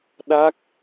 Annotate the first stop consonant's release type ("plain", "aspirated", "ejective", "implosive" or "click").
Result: implosive